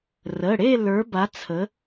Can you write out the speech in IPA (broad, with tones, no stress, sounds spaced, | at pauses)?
r ə˩˧˩ ɽ e˥˧ l ə˞˨˥ b a˨˥ t͡sʰ ə˨˥